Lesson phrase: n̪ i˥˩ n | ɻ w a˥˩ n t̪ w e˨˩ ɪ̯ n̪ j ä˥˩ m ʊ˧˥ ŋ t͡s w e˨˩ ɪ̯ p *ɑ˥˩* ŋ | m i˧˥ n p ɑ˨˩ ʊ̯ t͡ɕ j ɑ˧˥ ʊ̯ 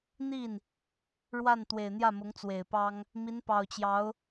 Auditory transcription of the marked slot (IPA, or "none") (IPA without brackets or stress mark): ɑ˥